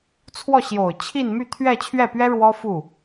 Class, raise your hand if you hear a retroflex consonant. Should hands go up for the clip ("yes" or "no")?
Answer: yes